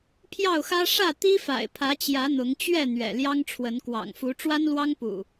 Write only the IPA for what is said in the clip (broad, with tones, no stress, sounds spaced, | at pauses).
pʰ j ɑ˥˨ ʊ̯ x ä˦ ʂ ä˥˨ t̪ i˦ f a̰˨˩ ɪ̯ pʰ ä˨˦ t͡ɕ j ä˨˦ n̪ ʊ˨˦ ŋ t͡ɕ ɥ ɛ˥˨ n̪ ɥ ɛ̰˨˩ l j ɑ˦ ŋ ʈ͡ʂʰ w ə˨˦ n k w ɑ̰˨˩ ŋ f u˨˦ ʈ͡ʂ w a˦ n l w ɑ˦ ŋ p ṵ˨˩